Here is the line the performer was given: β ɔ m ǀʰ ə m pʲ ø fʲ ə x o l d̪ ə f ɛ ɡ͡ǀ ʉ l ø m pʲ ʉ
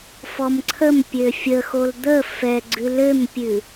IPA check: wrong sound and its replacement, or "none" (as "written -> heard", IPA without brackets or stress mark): β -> f